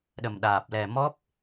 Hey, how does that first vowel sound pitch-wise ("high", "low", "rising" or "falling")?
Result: low